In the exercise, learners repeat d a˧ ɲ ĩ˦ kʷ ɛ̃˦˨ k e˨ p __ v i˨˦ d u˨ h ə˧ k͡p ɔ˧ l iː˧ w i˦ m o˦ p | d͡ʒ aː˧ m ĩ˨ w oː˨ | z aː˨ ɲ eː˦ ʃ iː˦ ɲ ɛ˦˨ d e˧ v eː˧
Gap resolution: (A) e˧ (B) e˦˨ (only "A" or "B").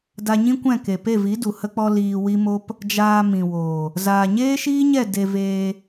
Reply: B